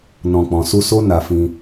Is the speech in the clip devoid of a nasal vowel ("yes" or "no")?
no